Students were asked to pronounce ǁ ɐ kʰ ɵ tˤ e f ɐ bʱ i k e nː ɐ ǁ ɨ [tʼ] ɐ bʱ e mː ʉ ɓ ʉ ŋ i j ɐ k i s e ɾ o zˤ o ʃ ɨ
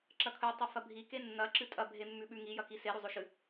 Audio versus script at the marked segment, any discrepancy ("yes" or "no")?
no